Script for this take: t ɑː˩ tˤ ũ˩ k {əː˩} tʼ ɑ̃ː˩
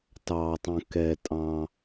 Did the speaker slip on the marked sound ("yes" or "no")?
yes